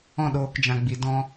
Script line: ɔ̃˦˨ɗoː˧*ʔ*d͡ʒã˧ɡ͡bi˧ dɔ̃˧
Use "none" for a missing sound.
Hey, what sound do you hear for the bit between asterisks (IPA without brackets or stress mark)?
k